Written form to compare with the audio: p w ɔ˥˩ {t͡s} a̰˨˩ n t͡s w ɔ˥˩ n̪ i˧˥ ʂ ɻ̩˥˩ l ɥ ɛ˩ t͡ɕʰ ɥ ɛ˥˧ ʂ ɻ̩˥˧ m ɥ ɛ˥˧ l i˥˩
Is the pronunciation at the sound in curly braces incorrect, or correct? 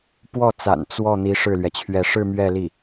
correct